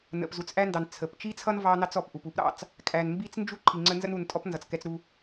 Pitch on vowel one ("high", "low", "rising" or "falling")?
low